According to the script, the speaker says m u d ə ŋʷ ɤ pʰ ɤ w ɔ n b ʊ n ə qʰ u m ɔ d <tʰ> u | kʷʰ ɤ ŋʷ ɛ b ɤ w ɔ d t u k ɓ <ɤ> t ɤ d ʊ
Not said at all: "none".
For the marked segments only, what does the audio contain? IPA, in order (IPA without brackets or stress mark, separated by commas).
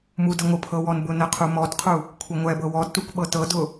qʰ, ɤ